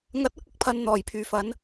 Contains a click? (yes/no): no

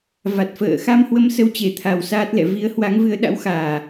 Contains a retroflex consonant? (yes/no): no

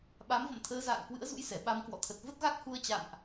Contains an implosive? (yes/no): yes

